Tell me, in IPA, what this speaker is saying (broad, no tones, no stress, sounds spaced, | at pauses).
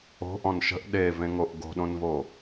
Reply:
o̤ ʔ ɔ̃ n ʃ ə̤ ʔ ɗ e v ẽ ŋ o ʔ ɡ o̤ ɗ õ n v o